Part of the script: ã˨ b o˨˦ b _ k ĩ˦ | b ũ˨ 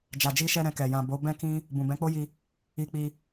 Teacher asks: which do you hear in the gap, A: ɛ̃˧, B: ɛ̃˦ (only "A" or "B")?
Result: B